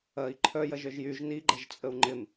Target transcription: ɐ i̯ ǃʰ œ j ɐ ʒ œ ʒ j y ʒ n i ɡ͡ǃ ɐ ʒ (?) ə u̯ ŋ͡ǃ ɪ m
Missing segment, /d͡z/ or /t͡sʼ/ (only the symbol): t͡sʼ